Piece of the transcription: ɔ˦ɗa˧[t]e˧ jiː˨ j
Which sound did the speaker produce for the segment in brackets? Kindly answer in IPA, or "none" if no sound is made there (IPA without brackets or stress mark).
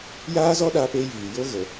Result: p